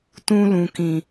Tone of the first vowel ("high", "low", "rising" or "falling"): high